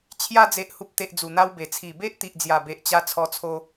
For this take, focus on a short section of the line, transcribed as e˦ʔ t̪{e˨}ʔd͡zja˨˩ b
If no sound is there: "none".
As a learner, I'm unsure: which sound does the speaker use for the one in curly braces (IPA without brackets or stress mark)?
i˨